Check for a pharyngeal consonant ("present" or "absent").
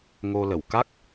absent